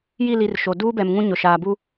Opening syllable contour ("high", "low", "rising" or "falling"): falling